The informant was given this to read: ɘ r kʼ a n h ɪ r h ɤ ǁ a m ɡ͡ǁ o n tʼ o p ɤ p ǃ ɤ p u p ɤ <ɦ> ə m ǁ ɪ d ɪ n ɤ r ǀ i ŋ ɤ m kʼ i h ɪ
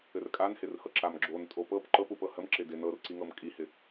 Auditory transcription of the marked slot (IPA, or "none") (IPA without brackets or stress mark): h